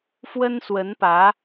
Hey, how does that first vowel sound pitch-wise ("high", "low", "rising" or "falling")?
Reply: high